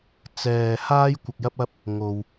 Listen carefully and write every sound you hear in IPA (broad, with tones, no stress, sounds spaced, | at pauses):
t͡s ɛː˧ h aː˥ j kʷ ɐ˧ k̚ j ɐ˥ p̚ ɐ˥ p̚ | ŋ o˥ w